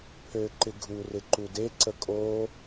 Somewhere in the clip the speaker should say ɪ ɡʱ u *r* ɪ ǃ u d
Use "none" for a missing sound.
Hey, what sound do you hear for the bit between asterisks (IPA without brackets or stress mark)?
r